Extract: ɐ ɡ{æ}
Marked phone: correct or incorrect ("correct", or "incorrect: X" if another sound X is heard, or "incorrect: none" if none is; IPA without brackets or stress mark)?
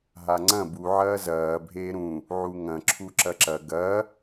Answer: incorrect: ɐ